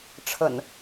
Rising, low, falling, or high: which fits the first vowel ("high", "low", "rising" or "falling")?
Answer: low